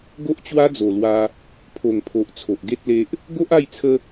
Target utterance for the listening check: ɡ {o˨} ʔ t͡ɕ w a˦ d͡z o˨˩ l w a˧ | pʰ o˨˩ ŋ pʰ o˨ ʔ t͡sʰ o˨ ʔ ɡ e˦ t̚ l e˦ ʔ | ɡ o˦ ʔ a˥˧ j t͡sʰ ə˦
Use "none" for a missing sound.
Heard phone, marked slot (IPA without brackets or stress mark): o˦